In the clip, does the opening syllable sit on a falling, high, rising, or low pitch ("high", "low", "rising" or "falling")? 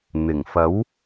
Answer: low